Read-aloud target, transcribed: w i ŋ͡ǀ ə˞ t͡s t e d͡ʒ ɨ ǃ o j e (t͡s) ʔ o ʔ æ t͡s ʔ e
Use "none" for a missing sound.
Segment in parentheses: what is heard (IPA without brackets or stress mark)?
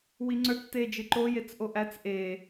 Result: t͡s